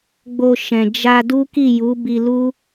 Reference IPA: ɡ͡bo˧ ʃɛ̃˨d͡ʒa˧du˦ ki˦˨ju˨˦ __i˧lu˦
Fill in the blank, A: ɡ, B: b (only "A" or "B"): B